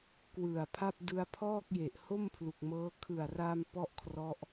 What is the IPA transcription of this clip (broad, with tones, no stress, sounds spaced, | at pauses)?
k w ɯ˨˩ a̯ pʰ a˥˩ p̚ d ɯ˧ a̯ pʰ ɔː˥˩ k̚ j e˨˩ ʔ h o˥˩ m pʰ l u˨˩ k̚ m ɤː˦˥ kʰ ɯ˨˩ a̯ r a˧ m p ɔ˥˩ ʔ kʰ r ɔ˦˥ ʔ